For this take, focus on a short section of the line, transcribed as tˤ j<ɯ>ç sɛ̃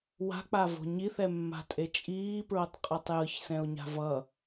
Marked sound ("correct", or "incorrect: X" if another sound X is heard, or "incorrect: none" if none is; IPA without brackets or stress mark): correct